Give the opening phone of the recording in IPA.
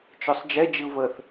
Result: t͡ʃ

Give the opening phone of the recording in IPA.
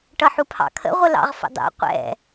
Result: ʈ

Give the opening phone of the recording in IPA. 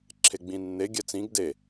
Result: ǁʰ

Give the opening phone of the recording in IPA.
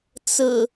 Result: t͡s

